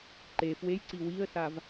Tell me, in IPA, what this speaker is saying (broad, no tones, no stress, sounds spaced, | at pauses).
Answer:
ǃ e f w e j ǀ i w i ə̯ s a v